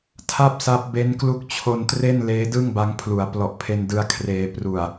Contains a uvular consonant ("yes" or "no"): no